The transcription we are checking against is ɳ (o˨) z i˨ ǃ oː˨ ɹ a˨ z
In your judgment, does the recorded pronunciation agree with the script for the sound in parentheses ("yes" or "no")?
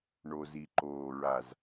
yes